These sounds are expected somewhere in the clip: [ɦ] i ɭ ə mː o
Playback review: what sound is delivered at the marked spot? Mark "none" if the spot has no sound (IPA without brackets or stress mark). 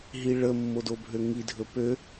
ɦ